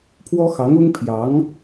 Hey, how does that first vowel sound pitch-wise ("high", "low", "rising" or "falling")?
high